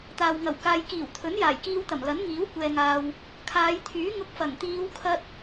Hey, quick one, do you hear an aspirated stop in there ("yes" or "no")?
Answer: yes